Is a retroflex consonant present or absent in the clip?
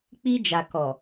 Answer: absent